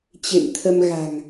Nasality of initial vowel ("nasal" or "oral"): oral